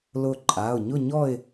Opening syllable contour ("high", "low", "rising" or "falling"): falling